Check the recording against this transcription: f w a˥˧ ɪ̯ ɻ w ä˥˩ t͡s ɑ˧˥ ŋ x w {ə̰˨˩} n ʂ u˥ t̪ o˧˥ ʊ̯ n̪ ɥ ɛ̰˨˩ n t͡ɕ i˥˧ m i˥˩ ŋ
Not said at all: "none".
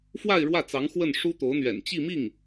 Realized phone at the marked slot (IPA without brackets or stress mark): ə˥˩